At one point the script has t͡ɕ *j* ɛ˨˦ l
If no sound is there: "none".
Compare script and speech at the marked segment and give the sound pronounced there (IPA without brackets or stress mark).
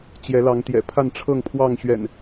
j